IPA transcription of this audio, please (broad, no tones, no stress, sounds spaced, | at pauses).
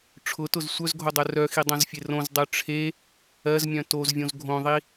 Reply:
ʈ͡ʂʰ ʊ t ʊ z sʷ œ z ɡʱ o dˤ œ r œ x i dˤ õ z fʲ e r õ z dˤ œ ʈ͡ʂʰ e | ɜ z mʲ œ̃ t o z vʲ õ z ɡʱ õ ðˤ i